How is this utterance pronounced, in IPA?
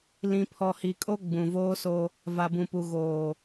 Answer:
l ĩ˨ pʰ ɔ˨ h i˨ kʼ o˦ ɡ͡b ũ˨ v oː˦ s o˦ | v a˨ b ũ˨ p u˨ ɣ oː˨

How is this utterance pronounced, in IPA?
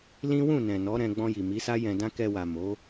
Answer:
l ĩ˦ w ũ˦˨ n ɛ̃˨ n ɔ˨˦ ɾ ɛ̃˧ ɡ͡b ɔ̃˧ j i˨ m i˨˦ s a˦ j ɛ̃˧ d ã˦ k ɛ˧ w a˨ m o˨˦

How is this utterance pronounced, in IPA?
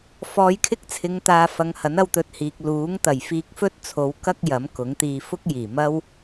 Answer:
f ɔː˨˧ j kʰ ɪ˥ k̚ t͡sʰ ɪ˨˧ ŋ t̪ aː˨ f ɐ˨˧ ŋ h ɐ˨˥ n ɐ˧ w t̪ ɵ˨ t̚ h iː˨ k̚ l uː˨˥ ŋ t̪ ɐ˨˩ j f iː˧ k̚ f ɵ˥ t̚ t͡sʰ o˨˧ w k ɐ˥ k̚ j ɐ˨˥ m k ʊ˨˥ ŋ t̪ iː˧ f ʊ˥ k̚ j iː˨˩ m ɐ˥ w

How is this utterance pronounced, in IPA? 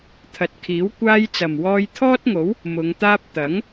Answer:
t̪ʰ ɐ˨˥ t̚ kʰ iː˨˥ w kʷ aː˥ j t͡s ɐ˨ m w ɔː˧ j t̪ʰ ɔː˥ t̚ ŋ o˨˥ w | m ʊ˨˧ ŋ t̪ aː˥ p̚ t̪ ɐ˨˥ ŋ

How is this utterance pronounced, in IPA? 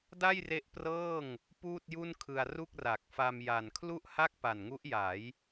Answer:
d a˥˩ j r e˦˥ ʔ p r ɤː˥˩ ŋ | p uː˥˩ t̚ j u˥˩ n kʰ ɯ˧ a̯ r u˥˩ k̚ r a˨˩ k̚ f a˧ m j a˨˩ n kʰ l u˥˩ ʔ h a˥˩ k̚ p a˨˩ n ŋ u˦˥ ʔ j a˩˦ j

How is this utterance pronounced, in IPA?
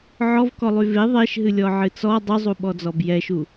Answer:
ʕ ɔ v k ɔ lˠ y v e ðˤ e ʃ ɦ ɨ lʲ ɔ ʕ ɨ t͡s ɔ dˤ y zˤ u ɓ ɔ d͡z ɔ b j ɛ ʃ u

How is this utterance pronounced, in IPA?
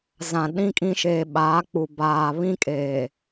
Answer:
z ã˨ ɗ ĩ˦ kʼ ĩ˦ ʃ eː˨ ɓ aː˨˦ k͡p u˨ b aː˨ β ĩ˦ kʼ eː˨

